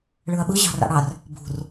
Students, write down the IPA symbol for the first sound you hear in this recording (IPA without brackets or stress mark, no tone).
ɭ